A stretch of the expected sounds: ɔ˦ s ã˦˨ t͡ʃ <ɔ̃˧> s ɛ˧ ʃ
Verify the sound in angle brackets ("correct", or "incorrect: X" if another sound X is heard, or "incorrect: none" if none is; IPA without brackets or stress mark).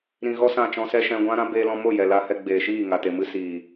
correct